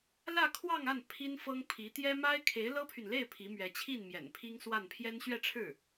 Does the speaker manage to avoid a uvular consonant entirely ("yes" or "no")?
yes